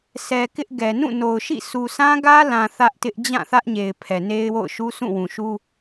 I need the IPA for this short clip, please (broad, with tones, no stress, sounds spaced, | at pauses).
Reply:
sʰ ɛ˨ k ɪ˦ ʔ ɡ ɛ˨ n ũ˦˨ n o˨ ʊ̯ ʃ ḭ˦˨ sʰ u˨ sʰ ã˦ ɡ ä˦ l ã˨ θ ä˦ ʔ t ɪ˦ ʔ d͡ʑ ã˦˨ θ ä˦ ʔ ɲ e˨ ɪ̯ pʰ ɛ˨ n e˦ ɪ̯ w o̰˦˨ ʊ̯ ʃ u˦ sʰ ũ˦˨ w ũ˨ ʃ u˦